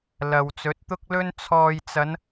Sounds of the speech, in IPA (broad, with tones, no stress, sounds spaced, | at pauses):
l ɐ˨ w t͡s ɵ˨˥ t̚ t̪ ʊ˥ k̚ l ɵ˥ n t͡sʰ ɔː˨ j t͡s ɐ˨˧ n